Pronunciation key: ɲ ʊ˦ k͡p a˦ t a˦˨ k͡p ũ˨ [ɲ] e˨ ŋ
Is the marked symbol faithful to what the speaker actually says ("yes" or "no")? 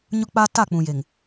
no